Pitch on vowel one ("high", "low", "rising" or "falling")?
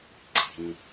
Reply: low